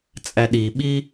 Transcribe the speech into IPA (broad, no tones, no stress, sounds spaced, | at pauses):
t͡sʼ æ ɗ i ɓ i